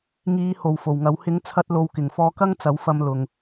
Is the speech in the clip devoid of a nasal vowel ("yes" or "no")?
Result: yes